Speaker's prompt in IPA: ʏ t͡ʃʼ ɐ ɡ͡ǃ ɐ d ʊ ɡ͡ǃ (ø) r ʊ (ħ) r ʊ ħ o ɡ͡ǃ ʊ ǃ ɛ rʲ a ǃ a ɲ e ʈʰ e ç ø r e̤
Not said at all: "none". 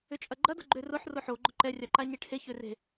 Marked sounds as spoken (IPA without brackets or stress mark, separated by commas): ø, ħ